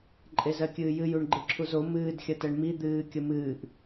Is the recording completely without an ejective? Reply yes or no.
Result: no